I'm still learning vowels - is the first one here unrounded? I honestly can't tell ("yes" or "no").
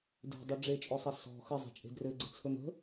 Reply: yes